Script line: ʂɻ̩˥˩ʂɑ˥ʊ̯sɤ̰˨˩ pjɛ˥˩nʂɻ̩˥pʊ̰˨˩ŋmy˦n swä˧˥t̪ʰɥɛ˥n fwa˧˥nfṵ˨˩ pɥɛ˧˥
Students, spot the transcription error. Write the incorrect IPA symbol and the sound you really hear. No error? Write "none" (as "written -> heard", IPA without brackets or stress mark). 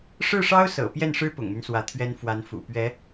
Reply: none